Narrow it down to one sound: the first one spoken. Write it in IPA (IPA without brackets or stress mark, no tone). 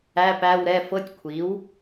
æ